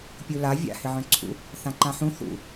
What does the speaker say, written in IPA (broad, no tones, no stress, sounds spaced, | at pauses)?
pʲ u l a vʲ a̰ h ɪ ʕ œ̃ ǀʰ ṵ | θ ã ǃ ã ħ ũ θ ṵ